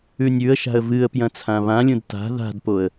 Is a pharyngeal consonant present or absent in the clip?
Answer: absent